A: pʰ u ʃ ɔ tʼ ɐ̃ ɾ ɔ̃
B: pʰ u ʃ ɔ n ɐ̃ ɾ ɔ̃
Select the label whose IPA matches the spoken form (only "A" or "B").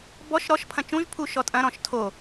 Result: A